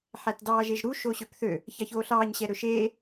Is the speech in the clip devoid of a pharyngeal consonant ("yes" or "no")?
no